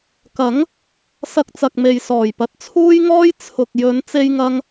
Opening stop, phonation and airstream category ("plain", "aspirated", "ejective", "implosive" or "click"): plain